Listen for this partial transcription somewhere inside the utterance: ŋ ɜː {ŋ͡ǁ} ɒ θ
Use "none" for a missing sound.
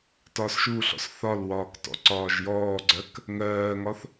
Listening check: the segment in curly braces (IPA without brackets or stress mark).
ŋ